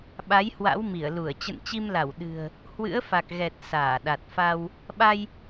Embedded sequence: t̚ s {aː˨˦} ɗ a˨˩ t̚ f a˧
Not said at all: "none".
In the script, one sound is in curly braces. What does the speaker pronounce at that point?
aː˧˩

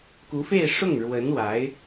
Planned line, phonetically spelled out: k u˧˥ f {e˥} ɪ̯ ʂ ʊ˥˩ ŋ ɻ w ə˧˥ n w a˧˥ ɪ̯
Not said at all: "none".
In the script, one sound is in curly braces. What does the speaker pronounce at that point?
e˥˧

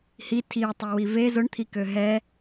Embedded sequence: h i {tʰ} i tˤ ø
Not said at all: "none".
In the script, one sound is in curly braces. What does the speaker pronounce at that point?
tʰ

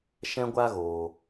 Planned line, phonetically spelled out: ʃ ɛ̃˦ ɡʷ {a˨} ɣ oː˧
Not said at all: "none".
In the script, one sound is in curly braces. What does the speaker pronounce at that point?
a˦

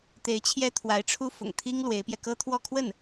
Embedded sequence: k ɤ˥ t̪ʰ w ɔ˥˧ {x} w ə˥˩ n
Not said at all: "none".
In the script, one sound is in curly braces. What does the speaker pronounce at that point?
kʰ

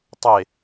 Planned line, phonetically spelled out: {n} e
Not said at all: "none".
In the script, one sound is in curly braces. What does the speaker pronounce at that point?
tˤ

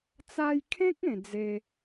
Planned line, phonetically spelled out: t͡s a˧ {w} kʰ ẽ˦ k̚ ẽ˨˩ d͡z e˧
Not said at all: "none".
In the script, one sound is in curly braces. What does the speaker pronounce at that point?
j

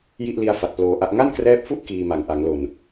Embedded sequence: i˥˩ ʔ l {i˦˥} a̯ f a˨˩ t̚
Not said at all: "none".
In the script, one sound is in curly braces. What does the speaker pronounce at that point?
i˦˥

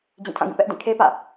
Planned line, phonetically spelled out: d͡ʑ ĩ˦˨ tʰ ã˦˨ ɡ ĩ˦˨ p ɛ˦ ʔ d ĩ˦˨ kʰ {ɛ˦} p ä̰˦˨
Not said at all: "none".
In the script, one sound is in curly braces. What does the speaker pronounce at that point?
e˦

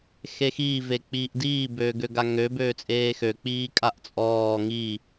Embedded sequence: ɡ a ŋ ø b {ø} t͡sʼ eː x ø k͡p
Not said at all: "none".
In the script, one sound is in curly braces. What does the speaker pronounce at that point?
øː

